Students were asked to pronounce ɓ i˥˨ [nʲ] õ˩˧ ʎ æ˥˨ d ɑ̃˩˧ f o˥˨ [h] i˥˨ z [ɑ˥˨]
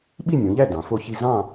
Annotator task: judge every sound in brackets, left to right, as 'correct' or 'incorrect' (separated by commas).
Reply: correct, incorrect, incorrect